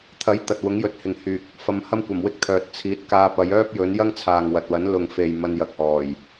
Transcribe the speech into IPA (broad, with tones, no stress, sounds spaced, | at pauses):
t̪ʰ ɐ˨˥ j t̪ ɐ˨ t̚ w ʊ˨˥ ŋ j ɵ˨ t̚ h ɪ˨ ŋ h yː˨ k̚ | f ɐ˧ m h ɐ˥ m kʷ ɐ˨˩ m w ɪ˥ k̚ t̪ʰ œː˨ t̚ t͡sʰ iː˨˥ t̚ k aː˧ p ɐ˨˧ j œː˥ p̚ j ɵ˨˥ n j ɐ˥ ŋ t͡sʰ aː˨ ŋ w ɐ˨ t̚ w ɐ˨˥ n l ʊ˨ ŋ f e˨ j m ɐ˧ n j ɐ˨ k̚ h ɔː˨˩ j